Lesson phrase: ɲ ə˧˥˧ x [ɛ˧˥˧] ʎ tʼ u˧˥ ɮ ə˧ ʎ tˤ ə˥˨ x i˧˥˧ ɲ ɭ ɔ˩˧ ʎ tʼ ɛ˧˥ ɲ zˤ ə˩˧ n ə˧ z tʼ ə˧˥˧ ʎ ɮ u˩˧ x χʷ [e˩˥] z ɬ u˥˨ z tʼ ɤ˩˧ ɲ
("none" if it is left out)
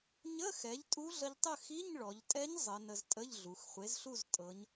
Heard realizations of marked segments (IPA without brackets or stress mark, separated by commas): ɛ˩˥, e˩˥